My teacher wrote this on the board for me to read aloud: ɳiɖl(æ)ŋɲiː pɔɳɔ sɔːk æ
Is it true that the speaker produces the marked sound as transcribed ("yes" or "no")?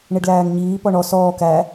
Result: no